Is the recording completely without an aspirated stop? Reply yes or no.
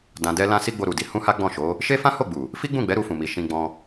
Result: yes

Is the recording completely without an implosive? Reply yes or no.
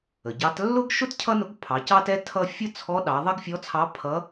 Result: no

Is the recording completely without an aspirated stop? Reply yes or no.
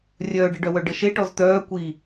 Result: yes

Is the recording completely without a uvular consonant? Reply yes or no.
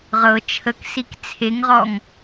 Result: no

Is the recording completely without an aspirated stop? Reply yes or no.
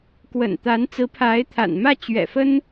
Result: no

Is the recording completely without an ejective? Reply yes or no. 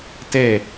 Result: yes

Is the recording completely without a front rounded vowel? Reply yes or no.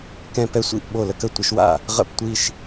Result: yes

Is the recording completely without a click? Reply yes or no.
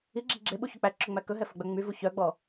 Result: no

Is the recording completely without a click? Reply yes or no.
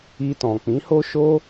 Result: yes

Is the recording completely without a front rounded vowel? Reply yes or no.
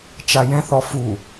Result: yes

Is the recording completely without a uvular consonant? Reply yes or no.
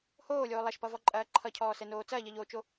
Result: yes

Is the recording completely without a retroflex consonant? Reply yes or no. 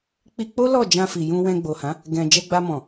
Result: yes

